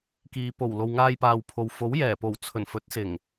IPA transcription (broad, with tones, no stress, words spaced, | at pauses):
kiː˨po˨˩w lo˨wŋaː˧jpaː˨wpʰo˨w fo˨˥wjɛː˨˩po˨˩w t͡sʰɵ˨˩n fɵ˨˥t̚sɪ˨˩ŋ